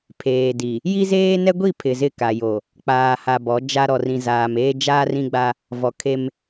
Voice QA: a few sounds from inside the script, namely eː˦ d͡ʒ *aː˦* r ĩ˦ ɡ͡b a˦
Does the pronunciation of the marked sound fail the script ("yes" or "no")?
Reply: no